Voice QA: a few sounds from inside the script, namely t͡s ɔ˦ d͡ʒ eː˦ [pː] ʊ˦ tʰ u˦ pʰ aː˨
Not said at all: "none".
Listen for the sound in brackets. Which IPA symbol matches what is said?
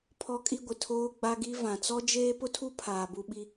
p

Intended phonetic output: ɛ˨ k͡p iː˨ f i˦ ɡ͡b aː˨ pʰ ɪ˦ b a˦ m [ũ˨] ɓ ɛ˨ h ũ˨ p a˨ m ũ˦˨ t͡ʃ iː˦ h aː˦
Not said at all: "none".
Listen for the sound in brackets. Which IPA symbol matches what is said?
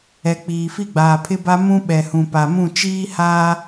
ũ˦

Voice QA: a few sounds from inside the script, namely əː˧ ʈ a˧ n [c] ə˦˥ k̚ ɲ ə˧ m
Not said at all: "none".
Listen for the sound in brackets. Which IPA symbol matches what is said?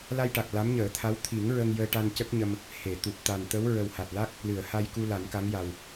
c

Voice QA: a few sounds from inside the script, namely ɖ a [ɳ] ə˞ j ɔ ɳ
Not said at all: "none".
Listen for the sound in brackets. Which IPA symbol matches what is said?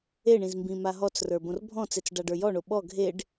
ɖ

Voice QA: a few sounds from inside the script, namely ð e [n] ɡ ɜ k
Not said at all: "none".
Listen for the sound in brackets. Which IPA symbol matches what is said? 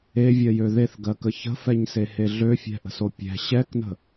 θ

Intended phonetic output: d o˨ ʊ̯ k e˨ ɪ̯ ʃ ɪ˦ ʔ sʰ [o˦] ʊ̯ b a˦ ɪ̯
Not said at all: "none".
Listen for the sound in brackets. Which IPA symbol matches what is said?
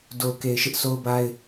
o˦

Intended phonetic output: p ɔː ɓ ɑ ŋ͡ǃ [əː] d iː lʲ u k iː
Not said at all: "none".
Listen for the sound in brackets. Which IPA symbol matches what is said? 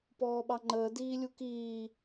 əː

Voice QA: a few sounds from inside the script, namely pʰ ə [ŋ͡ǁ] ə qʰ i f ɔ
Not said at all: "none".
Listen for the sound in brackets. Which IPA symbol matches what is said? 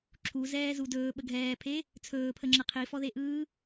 ŋ͡ǁ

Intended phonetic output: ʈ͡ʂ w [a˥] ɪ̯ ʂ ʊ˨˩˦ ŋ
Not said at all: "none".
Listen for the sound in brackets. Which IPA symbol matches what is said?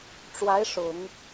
a˧˥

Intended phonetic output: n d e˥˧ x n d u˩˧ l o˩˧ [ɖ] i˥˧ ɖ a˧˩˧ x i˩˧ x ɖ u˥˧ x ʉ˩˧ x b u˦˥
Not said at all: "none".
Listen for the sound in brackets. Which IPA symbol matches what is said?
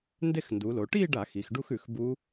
ʈ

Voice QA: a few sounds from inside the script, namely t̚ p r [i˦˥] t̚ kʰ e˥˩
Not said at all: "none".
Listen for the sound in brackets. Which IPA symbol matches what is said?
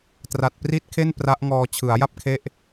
i˦˥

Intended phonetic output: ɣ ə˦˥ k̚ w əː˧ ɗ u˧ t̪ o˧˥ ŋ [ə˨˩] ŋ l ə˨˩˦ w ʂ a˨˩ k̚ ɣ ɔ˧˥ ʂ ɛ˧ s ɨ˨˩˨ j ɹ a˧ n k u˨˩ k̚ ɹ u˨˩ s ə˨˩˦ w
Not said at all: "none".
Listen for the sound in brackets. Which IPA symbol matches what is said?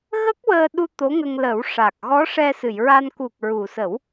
ə˧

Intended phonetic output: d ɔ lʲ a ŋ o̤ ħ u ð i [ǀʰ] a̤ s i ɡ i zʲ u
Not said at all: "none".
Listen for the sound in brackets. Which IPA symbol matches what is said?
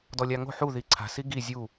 ǀʰ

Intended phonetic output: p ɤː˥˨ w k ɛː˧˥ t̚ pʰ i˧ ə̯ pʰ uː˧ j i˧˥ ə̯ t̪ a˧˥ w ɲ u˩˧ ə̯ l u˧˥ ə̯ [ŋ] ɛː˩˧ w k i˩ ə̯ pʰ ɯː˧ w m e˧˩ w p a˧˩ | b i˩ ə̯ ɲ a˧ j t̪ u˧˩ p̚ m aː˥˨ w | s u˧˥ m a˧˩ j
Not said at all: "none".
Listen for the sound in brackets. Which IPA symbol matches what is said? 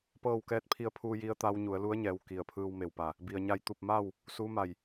ɲ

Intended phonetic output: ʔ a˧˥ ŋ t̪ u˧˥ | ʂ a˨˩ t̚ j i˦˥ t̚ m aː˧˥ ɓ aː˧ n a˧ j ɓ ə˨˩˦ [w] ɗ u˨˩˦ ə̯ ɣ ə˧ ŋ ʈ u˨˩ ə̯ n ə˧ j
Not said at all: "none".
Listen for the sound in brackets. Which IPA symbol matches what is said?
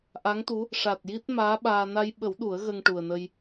w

